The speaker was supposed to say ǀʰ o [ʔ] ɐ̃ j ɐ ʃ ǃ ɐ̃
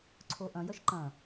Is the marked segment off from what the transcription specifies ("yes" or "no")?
no